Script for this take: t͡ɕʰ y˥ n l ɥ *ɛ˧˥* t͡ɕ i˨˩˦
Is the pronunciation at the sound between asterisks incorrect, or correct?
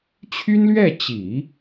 incorrect